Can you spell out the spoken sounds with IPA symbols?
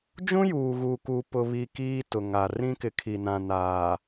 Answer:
d͡ʒ ũ˦ j uː˨ ɣ uː˨ k uː˨ p ʊ˨ β i˨ k iː˦ t ʊ˨ ŋ a˨ r ĩ˦ k ɪ˨˦ kʰ i˨ n ã˨ n aː˨

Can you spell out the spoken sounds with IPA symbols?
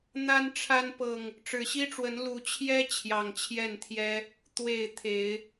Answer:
n̪ a˦ n ʈ͡ʂʰ a˦ n p ɤ˨˩ ŋ | ʈ͡ʂ ɻ̩˨˩ ɕ i˦ ʈ͡ʂ w ə˨˦ n l u˨˦ t͡ɕʰ j ɛ˦ t͡ɕʰ j ɑ˨˩ ŋ t͡ɕʰ j ɛ˥˨ n t̪ʰ j ɛ˦ | t̪ w e˥˨ ɪ̯ t̪ʰ e˨˦ ɪ̯

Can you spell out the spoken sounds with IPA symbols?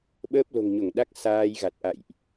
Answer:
ɓ əː˦˥ p̚ l o̤˨˩ ŋ ɲ o˧˩ ŋ ɗ a˦˥ k̚ s aː˧ j ɣ a˨˩ t̚ ʔ a̰˧˨ j ʔ

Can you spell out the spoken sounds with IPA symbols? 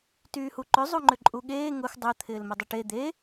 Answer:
t yː h u ǃ ʏ zˤ u ŋ͡ǃ ʏ ǃʼ u ɠ eː ŋ ʊ x dˤ ʊ t̪ʰ ɪː l m ʏ dˤ ʏ ʈ e d̪ e

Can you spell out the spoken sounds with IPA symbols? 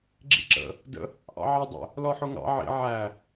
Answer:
ɡ͡ǁ ḭ ǁ ə̰ | d ə̰ | ʔ ɑ̰ ʕ ɑ dˤ ə̰ | l ɔ ħ ʊ ŋ ɑ̰ ʕ ḭ ʕ æ

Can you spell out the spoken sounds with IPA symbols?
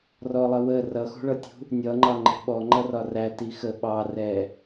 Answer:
r ɔ lˠ ʌ w ə r ʌ x ṳ ɭ ʌ tʲ ṳ | nʲ ʌ ŋ͡ǃ ɑ ŋ͡ǃ ɛ̤ ɓ ɔ ŋ͡ǃ ʌ r ɒ r æ t i x ə ɓ ɑ r ɛ

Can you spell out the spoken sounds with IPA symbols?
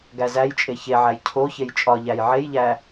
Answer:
ɡ æ z æ j t͡ʃʼ e ç e ʕ æ j cʰ o ç e j t͡ʃʼ ɒ ʎ æ j ʕ e j ʎ æ

